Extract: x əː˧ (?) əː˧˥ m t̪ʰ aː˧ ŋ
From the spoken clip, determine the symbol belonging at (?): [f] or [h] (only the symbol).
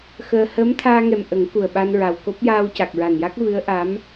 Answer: h